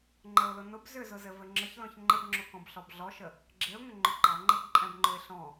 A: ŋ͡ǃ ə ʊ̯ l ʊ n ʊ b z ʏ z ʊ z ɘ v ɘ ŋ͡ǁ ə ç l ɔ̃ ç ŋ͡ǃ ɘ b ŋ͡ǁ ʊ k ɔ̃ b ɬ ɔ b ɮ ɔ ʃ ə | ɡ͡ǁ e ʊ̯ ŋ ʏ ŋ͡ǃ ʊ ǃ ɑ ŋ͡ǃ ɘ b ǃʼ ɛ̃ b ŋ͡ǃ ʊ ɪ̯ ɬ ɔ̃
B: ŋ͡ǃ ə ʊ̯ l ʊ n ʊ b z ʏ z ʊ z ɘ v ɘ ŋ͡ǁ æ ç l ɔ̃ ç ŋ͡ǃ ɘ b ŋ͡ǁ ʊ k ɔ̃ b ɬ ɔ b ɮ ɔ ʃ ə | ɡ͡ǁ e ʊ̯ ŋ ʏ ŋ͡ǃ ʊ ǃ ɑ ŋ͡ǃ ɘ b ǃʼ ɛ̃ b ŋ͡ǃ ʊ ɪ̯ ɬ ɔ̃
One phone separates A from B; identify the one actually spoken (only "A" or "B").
A